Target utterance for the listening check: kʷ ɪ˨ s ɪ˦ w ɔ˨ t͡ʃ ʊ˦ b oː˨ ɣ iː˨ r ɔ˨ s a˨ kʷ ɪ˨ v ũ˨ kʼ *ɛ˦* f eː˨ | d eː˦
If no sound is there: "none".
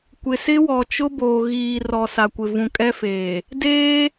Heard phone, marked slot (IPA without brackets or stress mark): ɛ˦